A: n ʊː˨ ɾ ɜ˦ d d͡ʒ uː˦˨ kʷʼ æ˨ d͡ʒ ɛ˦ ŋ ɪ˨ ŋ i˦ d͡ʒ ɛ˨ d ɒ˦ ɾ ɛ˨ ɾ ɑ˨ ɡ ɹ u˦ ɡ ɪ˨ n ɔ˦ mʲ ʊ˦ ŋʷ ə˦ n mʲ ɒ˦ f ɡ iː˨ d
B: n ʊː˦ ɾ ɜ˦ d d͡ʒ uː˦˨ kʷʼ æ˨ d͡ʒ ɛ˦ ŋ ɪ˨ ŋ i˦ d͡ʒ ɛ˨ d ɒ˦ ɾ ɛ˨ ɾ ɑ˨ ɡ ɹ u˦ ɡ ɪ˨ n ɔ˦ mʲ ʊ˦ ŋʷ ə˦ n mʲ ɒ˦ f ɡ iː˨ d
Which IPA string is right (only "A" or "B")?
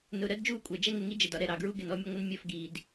A